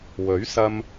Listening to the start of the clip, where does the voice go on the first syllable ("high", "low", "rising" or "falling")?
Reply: rising